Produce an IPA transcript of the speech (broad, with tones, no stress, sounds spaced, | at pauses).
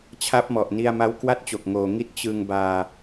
t͡ɕʰ a˦˥ p̚ m ɔ˨˩ ʔ n i˧ a̯ m a˦˥ w k w a˥˩ t̚ t͡ɕ o˨˩ k̚ ŋ oː˨˩ ŋ i˦˥ t̚ t͡ɕ ɯ˧ ŋ b aː˧